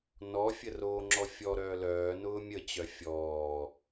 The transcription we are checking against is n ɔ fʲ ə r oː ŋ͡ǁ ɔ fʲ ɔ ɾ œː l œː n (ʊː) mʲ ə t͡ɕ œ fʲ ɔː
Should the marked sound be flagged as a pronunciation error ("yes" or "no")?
no